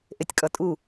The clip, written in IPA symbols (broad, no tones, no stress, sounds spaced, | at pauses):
ʔ e tʲ kʼ ʌ tʼ u